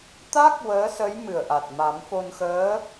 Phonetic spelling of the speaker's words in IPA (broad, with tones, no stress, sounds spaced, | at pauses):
t̪ a˦˥ k̚ w əː˧˥ s ə˧˥ j m ɨ˨˩ ə̯ ʔ a˨˩ t̚ m a˨˩˦ m f o˧ n x əː˧˥